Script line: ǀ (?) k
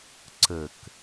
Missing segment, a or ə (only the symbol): ə